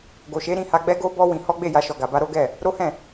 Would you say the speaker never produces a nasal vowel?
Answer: no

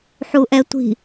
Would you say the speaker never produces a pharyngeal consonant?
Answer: no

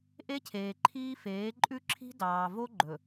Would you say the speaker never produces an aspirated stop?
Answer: no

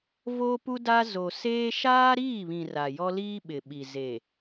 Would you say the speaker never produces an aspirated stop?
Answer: yes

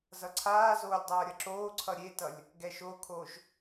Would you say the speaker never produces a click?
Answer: no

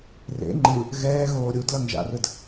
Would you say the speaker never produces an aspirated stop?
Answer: yes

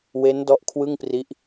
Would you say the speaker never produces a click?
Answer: yes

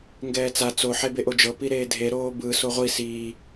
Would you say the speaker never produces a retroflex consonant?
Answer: yes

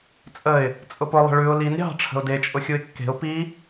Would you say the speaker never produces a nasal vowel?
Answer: yes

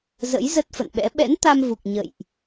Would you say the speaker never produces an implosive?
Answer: no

